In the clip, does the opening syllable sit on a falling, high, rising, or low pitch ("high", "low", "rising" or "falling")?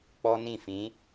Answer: high